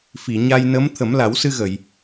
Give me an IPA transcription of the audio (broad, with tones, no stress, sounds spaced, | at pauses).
f i˨˩˨ ɲ a˧ j n ə˧˥ m t̪ʰ ə˨˩˦ m l a˨˩˦ w s ɨ˧ ɣ ə˨˩˨ j